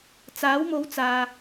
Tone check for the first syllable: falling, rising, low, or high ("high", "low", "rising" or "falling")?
rising